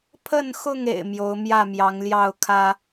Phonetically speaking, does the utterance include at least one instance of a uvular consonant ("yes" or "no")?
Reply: no